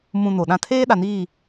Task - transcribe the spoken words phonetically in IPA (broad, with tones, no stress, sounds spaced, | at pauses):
m ũ˨ n o˨ ɗ ã˦ tʰ eː˦ ɗ a˨ n iː˦˨